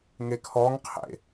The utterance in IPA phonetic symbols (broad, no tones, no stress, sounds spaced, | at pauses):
ŋ e kʰ ɔ ŋ qʰ ḛ